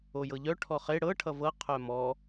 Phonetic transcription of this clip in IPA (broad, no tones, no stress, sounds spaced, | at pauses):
o j ɤ ʎ œ ʈʰ ɔ χ e ɽ ɤ ʈʰ ʌ v ɤ qʰ œ m ɔ